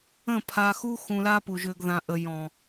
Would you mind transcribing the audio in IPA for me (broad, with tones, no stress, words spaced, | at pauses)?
ə̃˦˨pʰa˧xu˦ xũ˧la˦pu˨ ʒʏ˨ɡ ðã˨ʔə˨ jɔ̃˨